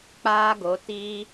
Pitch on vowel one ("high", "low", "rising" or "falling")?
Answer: high